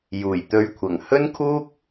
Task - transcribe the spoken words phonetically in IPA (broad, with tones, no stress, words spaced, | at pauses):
juː˨˩jt̪ɵ˧ɥkʷʰɐ˨˩ŋ hɵ˥nkʰuː˥k̚